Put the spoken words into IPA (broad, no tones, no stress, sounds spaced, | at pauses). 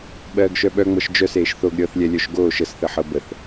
ɓ ɜː ɡ ʃ œ ɓ œ ŋ͡m ɤ ʃ d͡ʒ œ s eː ʃ θ o ɡ ɾʲ ɤ θ lʲ ɛ lʲ œ ʃ ɡ oː ʃ ə s θ ə ħ ɤ b ə θ